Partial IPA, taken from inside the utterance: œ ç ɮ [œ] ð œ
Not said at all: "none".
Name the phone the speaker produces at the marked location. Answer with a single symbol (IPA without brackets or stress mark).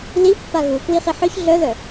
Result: œ